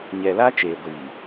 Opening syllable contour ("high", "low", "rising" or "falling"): low